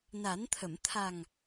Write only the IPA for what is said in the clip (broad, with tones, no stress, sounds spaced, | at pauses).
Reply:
n a˨˩˦ n t̪ʰ ə˨˩˨ m t̪ʰ a˨˩ ŋ